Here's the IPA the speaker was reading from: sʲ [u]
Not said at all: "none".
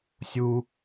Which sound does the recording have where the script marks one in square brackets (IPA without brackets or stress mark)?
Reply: u